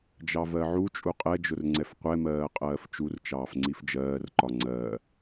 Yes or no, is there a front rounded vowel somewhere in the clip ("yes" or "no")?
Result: no